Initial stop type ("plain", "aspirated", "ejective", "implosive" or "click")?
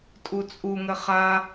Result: ejective